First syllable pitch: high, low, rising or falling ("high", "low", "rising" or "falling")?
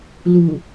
low